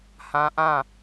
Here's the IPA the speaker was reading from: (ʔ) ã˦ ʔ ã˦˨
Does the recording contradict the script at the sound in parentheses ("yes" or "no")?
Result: yes